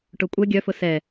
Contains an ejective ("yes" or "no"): yes